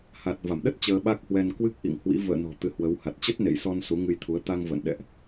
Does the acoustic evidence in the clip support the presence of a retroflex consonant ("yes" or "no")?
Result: no